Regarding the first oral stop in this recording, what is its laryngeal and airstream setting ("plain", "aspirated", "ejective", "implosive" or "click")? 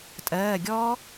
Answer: ejective